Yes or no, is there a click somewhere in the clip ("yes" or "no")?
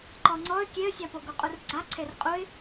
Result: yes